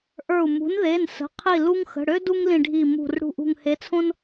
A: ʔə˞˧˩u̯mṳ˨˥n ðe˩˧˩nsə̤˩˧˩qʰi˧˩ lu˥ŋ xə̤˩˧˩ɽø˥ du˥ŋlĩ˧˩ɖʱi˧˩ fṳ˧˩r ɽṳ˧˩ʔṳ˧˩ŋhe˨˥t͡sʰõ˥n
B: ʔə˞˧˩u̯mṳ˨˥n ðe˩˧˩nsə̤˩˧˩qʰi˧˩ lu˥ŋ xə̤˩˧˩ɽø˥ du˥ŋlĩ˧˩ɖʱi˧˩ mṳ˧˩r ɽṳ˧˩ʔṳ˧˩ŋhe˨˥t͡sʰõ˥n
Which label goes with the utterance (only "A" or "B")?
B